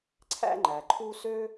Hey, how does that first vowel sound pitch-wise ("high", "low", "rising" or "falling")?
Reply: high